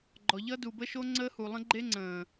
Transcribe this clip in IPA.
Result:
ɡ͡ǃɔ˨ʎʌ˦du˨ bə˦ʃo˦ŋ͡ǀəː˦hu˨ lˠə̃˦ɡ͡ǃe˦ŋ͡ǀə̃ː˨

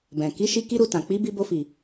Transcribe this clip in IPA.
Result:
bɛ̃˨ ki˨˦ʃi˧ ki˦ɾu˧tã˨ k͡pi˨˦bi˧bo˧fi˨

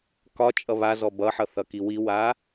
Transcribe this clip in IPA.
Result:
kɒt͡ʃʼʌ βazɔ bʌħʌθʌki wiwa

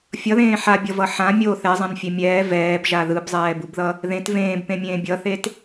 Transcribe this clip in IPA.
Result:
fʲʌðẽː ħabʲʌvʌ ħã mʲo θɛzˤãnfʲe mʲɛː vɛːbʒa ðɯbzˤɛːbubðʌ | ðẽt vẽːbpẽmʲẽː bʲʌθet

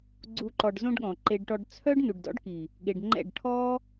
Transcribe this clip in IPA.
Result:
ɡ͡ǀu˧ ǃɔ˨ɖzõ˧ɖ ɠɔ̃˨ǃe˧ɖʈɔ˧ɖ t͡sʰœ˦ɖ nu˨ɖ dɔ̰˦ɖki˨ | ɠe˨ɖŋ͡ǃɛ̰˦˨ɖ ʈʰɔ˦

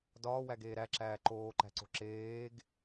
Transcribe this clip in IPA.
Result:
dɒːwæɡeː ɾæǁæː ǃoːǃæ̤ǀo̤ ǁeːɡ

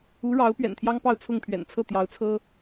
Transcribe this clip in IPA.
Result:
u˧˥ɻɑ˧˥ʊ̯ pɥɛ̰˨˩nt̪ʰjɑ˥ŋpɑ˥˧ʊ̯ t͡sʰʊ˥˩ŋpʰɥɛ̰˨˩n t͡sʰɤ˥˩ t̪jɑ˧˥ʊ̯t͡sʰɤ˥

